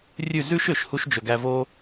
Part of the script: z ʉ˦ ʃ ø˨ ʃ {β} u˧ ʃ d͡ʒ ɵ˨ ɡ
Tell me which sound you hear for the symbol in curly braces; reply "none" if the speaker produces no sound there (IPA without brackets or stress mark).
h